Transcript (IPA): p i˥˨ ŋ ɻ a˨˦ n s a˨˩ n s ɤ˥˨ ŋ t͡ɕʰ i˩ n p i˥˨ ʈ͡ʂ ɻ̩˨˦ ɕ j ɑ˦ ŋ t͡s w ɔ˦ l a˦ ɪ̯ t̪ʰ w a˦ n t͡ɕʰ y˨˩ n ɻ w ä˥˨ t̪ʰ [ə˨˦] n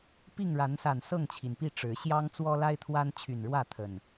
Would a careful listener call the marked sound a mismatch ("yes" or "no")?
yes